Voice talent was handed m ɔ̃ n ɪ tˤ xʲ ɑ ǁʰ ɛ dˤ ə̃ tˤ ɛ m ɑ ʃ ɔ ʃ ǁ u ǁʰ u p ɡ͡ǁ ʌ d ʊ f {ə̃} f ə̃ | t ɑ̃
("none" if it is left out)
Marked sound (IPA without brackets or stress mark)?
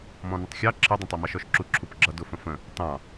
ə̃